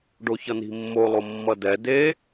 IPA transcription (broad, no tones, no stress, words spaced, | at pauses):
ɖoçʌni̤mːo lˠomːʌdɛ de